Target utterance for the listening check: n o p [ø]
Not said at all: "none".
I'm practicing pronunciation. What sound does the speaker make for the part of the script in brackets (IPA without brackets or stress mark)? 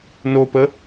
ə